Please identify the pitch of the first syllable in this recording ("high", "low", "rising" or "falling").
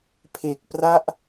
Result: low